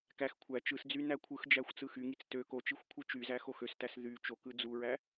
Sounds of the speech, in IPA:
kæx kʷʰæ t͡ʃɯsd͡zy nækʷʰɯxd͡ʒæxʷ t͡sɯxyŋit͡s tø kot͡ʃixʷ kʷʰɯt͡ʃyzæ xoxøstæs ðy t͡ʃokɯ d͡zuɹæ

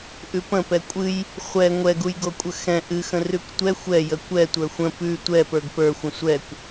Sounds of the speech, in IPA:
ʔʉpə̃ pɛkʷʼɨj | χʷɛ ŋʷɛɡujɡokʷʼə xɛ̃ ʔɨxə̃ rʉkʷtʷɛ xʷɛ jəkʷɛ tʷə˞xʷə̃ pʉ tʷɛpə˞ɡ pə˞xʷə̃ sʷɛkʷ

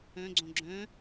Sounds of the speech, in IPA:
œ̃ɡ͡ǀõ ɡ͡ǁœ̃

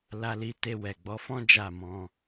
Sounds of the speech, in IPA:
la˧li˧te˧ wɛ˨ɡ͡bɔ˨˦fɔ̃˦ d͡ʒa˦˨mɔ̃˧

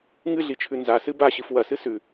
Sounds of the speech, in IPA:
ŋɨɮit͡ʃʰʉ nzasɨ baɕɨf wɐsɨ sʉ

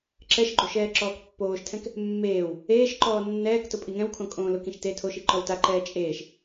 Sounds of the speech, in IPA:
ǁɛʃɡ͡ǃo ʃɛːǁɔːkpːoːʃtʰɛ̃k | mːeːw | eːʃǃɔː nːɛːktʊ pʼiŋɛ̃wkʰõ kʼõːlʊkĩʃ te tʰoʃi ǃɔwtaǃɛː t͡ʃʼeːʃ

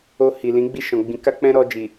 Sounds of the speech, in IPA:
o˧ hi˨lĩ˨˦ɡ͡bi˦˨ ʃɔ̃˨ɡ͡bĩ˨˦ka˦k͡pɛ̃˦ ɾɔ˧d͡ʒi˨

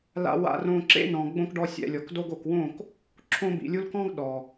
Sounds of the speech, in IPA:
la̰˧wa̰˧rõ˧ ǁḛ˦nɔ̃˨ ɡ͡bõ˧k ɖɔ˧sʲɛ̰˨lʲɔ˨kdo˦ɡ o˨kwõ˦˨k | ǁʰõ˧bḭ˨lʲu˧lkɔ̃˦ɡ ɗɔ˨

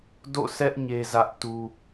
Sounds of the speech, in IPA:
do̰˦˨sɛ˦ʔ ɲe˦zä˦ʔ tu˦

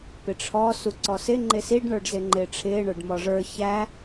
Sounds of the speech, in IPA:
pɪʈ͡ʂʰɔ suǀɔsɪ ŋ͡ǃɪsiɖ ɳə˞ɖzɪŋ͡ǃɪːʈ͡ʂʰɪː ɳə˞ɖmɔʐə˞ çæ

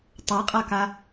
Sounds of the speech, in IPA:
tˤaqʼaka

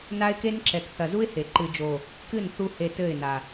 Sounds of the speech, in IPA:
na˦ɪ̯ke˦nǁɛ˨k θɐ˨zu˦ɪ̯ he˨ ǃɨ˨d͡ʒo˨ | kɨ˦˨nθu˧ he˧ tɘ˦˨ɪ̯na˨

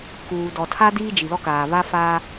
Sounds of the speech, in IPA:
kuː˨dɔ˨tʰa˦ diː˦d͡ʒi˨lɔ˦kaː˨ βa˦faː˦

